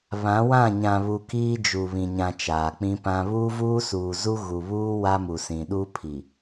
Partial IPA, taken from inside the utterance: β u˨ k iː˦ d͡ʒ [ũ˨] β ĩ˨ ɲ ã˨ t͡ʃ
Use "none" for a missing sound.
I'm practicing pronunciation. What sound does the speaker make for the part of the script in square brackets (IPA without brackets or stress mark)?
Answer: u˨